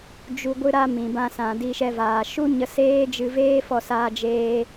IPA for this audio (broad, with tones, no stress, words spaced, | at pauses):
d͡ʒu˧ ɡʷɨ˧ɾa˧ mĩ˨bã˧ sã˨di˧ʃɛ˧vaː˨ ʃu˦ɲə˧ seː˦d͡ʒɨ˧veː˦fɔ˧ saː˧d͡ʒeː˧